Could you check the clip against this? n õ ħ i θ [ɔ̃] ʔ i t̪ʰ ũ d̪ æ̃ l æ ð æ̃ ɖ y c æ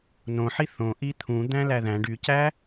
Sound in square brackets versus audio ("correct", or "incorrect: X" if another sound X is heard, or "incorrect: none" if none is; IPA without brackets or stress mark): incorrect: õ